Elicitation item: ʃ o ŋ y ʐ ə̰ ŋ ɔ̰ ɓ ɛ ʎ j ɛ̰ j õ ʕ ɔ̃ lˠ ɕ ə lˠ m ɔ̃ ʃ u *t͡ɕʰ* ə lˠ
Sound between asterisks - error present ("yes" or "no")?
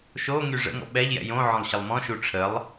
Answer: yes